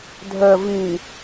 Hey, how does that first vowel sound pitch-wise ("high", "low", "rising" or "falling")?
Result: low